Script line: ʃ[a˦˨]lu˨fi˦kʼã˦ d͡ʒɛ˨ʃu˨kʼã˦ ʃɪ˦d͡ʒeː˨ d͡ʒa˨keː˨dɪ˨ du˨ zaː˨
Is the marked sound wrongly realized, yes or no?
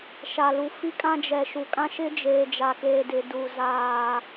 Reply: yes